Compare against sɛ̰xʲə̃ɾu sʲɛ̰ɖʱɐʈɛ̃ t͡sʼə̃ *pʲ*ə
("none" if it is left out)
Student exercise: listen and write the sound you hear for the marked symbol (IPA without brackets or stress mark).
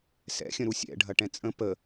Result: p